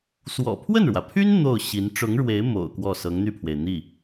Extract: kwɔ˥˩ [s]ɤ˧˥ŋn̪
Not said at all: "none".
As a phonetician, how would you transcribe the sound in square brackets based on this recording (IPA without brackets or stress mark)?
s